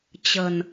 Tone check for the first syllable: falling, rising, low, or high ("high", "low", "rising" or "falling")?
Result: low